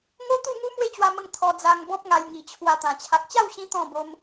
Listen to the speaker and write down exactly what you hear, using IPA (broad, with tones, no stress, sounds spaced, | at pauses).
ŋ o˦ t̪ u˥˧ ŋ u˦ m w e˥˧ t͡ɕ w a˧ m ə˧ ŋ t̪ʰ ɔ˧ d͡z a˧ ŋ b ɔ̃˦ p̚ ŋ a˧ j ŋ i˨˩ t͡ɕʰ w a˧ t̪ ã˨˩ t͡ɕʰ a˨ k̚ t͡ɕ a˥˧ w ɕ ĩ˧ t̪ ɔ̃˥˧ b o˧ m